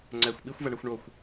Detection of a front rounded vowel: absent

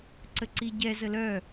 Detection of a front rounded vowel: present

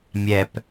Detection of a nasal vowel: absent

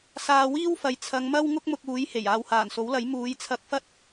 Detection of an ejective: absent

